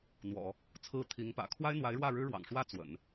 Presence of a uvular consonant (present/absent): absent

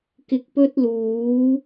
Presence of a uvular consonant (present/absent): absent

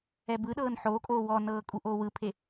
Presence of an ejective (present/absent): present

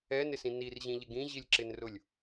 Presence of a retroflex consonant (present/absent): absent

